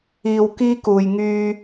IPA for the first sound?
iː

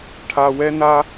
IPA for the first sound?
ʈʰ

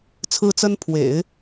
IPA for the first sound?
t͡sʰ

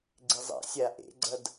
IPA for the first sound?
ɡ͡ǀ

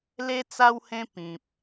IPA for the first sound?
l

